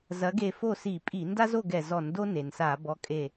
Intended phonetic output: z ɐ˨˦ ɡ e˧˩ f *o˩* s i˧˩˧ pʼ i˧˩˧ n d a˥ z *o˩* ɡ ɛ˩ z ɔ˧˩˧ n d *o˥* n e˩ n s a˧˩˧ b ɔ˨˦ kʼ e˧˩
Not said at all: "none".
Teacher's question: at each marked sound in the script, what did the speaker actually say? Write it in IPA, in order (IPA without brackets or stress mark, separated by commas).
o˥˨, o˥˨, o˥